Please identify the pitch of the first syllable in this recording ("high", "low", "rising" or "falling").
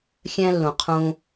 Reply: high